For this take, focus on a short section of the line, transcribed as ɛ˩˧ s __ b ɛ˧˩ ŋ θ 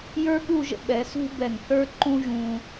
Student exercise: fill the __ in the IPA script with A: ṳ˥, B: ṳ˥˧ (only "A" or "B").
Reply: A